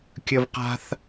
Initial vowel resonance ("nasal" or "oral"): oral